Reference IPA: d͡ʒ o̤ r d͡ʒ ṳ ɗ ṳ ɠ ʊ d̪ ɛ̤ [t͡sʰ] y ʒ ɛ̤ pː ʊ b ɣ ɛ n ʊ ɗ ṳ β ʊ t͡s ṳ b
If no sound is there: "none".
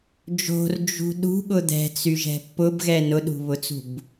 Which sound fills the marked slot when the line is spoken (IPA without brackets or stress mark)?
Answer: t͡s